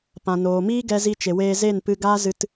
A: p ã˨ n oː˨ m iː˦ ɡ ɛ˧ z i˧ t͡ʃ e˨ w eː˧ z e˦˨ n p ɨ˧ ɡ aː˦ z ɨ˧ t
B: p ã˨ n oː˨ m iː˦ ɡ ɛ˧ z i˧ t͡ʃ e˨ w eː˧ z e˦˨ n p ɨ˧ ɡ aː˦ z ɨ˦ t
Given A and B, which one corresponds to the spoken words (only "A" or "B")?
A